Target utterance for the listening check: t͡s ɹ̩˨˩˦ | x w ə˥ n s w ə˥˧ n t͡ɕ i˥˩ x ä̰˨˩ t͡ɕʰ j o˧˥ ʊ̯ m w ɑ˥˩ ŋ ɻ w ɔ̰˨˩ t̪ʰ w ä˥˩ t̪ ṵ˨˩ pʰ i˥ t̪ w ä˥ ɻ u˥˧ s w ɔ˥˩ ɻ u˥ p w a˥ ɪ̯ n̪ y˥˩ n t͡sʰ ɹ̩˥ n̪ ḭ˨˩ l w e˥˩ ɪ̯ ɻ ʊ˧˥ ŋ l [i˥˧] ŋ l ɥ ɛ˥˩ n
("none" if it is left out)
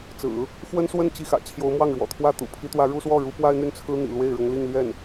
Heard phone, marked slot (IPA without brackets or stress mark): i˥˧